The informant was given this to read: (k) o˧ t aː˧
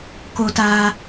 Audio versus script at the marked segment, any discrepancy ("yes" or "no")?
no